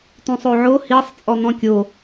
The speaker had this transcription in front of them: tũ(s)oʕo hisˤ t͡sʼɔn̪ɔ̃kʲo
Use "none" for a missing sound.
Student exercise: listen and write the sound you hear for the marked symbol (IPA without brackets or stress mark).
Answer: sˤ